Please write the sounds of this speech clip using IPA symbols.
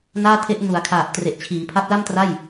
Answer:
n aː˥˩ tʰ e˦˥ ʔ n u˩˦ a̯ kʰ aː˨˩ p̚ t r e˨˩ ʔ t͡ɕʰ iː˩˦ pʰ a˦˥ p̚ l a˥˩ m t r a˥˩ j

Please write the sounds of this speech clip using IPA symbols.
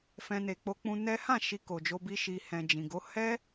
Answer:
f ɛ̃˦ n e˧ k͡p o˦ k͡p ũ˦ n ɛ˦ h ã˦˨ ʃ i˧ k o˨ d͡ʒ o˧ b i˦ ʃ i˧ h ɛ̃˨ d͡ʒ ĩ˨ ɡ o˨˦ h ɛ˦

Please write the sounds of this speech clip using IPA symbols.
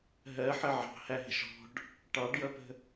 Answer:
ɦ ɜ ħ ə ʕ ɑ̤ h æ ɦ ə̤ ʃ ɔ̤ ɖ | ʈ ɑ ɖ j ʌ p ə̤

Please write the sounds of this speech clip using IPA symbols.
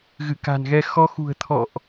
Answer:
ɣ ɨ˧˩ k a̤˨˩ n ɣ ɛ˧ x ɔ˨˦ x ṳ˨˩ ə̯ t̪ʰ ɔ̰˧˨ ʔ

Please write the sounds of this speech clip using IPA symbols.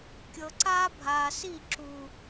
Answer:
kʲ ɤ˨ ǀ aː˦ bʱ aː˨ s i˦˨ ǁ u˨

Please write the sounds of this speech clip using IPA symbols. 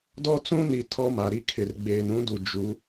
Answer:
d ɔ˦ t͡s ũ˦ n i˨ tʰ ɔ˦ m a˨ ɾ i˦ kʰ ɪ˨ r ɡ͡b eː˨ n ũ˦ d u˨ d͡ʒ u˨˦

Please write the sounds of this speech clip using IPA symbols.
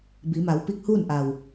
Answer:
b i˩˧ m a˩˧ w p i˧˥ k̚ h uː˥˨ n ʔ a˩ w

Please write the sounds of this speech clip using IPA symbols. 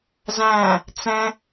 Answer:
z æ̃ | t͡s ɛ̃

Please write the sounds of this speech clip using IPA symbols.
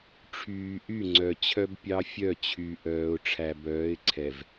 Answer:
ʈ͡ʂʰ yː˨ ʔ y˦˨ ŋ͡ǀ œ˨ t͡ɕʰ œ˦ b pʲ ɑ˦ fʲ œ˦˨ t͡ɕʰ y˨ ʔ œː˨ ʊ̯ ʈ͡ʂʰ æ˨ b œː˨˦ ɪ̯ ǀʰ ɛ˨ v

